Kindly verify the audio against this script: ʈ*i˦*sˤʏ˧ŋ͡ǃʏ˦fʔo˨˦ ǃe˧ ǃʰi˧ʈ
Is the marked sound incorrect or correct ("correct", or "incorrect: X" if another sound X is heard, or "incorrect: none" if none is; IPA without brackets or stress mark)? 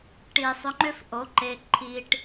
incorrect: i˨